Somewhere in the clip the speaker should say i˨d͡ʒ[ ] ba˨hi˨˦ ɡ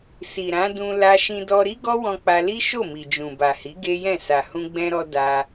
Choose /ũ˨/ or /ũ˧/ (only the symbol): ũ˨